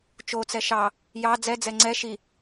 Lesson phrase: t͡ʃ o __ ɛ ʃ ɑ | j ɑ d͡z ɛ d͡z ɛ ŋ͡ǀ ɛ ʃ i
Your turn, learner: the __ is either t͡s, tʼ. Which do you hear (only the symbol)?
t͡s